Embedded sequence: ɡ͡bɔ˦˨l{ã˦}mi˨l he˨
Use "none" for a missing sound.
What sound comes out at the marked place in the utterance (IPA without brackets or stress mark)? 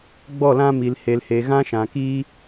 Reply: ã˦